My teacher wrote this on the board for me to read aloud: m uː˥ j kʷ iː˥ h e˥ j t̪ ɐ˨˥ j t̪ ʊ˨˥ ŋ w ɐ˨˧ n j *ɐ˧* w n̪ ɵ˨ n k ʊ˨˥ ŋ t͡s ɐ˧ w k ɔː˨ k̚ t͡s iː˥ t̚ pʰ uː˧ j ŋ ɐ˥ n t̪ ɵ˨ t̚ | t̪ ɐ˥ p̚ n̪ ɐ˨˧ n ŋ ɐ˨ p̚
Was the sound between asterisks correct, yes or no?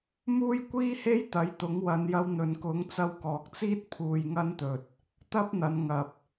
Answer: yes